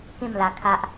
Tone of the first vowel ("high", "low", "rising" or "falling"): falling